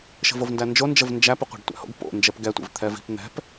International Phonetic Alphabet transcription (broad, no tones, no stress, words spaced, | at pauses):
ʃə̤vovndænd͡ʒo nd͡ʒəvnd͡ʒæ pəqʷɛ̤ɖtʷæ̰ho̰ɡ po̰nd͡ʒɛp ɡɛtʷḭv t̪ʰɛvi̤p n̪ɛ̤p